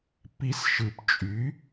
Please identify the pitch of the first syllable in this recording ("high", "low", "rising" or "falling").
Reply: rising